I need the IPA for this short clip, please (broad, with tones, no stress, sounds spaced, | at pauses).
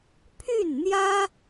pʰ y˥˩ n n̪ j ä˥